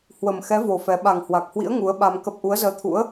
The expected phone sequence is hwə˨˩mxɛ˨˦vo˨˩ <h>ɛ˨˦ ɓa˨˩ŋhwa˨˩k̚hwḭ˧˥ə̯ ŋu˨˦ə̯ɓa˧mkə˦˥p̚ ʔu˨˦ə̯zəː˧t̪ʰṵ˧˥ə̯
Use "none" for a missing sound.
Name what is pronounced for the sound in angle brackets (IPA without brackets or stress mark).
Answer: f